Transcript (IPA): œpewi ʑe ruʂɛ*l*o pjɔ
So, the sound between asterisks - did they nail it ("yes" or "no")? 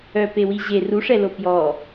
yes